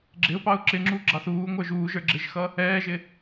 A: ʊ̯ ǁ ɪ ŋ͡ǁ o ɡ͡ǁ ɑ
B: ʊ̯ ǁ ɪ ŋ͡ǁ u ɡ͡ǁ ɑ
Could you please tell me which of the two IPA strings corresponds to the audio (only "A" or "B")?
B